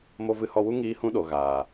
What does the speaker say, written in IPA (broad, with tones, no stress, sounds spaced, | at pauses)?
m o˧ v ɨ˧ h ɔ˧ w u˦ ŋ iː˦ h ũ˦ ɗ o˨ ɣ aː˨